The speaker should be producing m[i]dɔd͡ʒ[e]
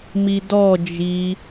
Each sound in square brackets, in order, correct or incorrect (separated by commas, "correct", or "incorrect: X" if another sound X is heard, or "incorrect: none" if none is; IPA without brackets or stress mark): correct, incorrect: i